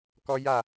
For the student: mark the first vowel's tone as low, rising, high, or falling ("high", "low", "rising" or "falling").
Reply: high